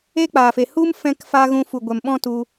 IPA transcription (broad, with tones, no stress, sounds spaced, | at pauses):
eː˦ k͡p aː˨ f e˨ h u˦ m f ɛ̃˦ k f a˦ ɣ ũ˧ f u˨ ɡʷ ɛ˨ m ɓ ɔ̃˦ t u˧